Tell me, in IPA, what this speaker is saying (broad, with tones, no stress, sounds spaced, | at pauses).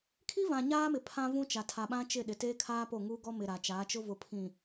kʰ i˦ v ã˨ ɲ aː˦ m ɪ˨ pʰ ã˦ v ũ˦ t͡ʃ a˨ tʰ a˨ ɓ ã˦ t͡ʃ ɪ˦˨ ɗ ɪ˨ t eː˦ kʰ aː˦ p o˦˨ ŋ uː˦ ɡ ɔ˦ m ɪ˨ ɾ a˨ t͡ʃ aː˨˦ t͡ʃ ʊ˦ v ʊ˨ pʰ ĩ˨